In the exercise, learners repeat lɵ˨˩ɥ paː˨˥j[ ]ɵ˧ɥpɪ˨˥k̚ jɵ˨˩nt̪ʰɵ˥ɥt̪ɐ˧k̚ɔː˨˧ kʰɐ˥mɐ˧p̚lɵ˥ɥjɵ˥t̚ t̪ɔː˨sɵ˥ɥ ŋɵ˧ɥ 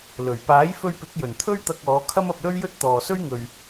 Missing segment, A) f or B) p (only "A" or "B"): A